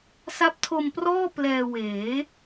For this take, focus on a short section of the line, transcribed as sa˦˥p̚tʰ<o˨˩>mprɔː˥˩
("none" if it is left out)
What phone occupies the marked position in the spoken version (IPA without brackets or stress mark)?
o˧